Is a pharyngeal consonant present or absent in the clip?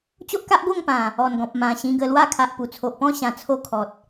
absent